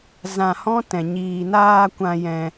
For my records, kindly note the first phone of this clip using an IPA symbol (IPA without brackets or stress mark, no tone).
z